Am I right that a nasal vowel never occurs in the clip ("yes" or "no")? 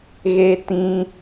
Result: no